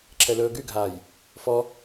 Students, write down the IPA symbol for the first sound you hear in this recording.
ǁʰ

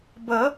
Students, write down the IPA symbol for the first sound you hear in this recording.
b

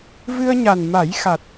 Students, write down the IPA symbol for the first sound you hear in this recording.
v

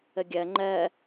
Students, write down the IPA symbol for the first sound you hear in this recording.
ə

